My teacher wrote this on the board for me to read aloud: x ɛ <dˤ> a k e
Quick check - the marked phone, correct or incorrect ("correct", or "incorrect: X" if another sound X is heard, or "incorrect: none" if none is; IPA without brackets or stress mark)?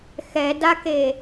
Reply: incorrect: d